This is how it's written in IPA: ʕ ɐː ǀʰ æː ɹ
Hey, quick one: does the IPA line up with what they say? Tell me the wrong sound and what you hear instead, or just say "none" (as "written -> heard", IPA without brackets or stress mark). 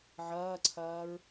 æː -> ɐː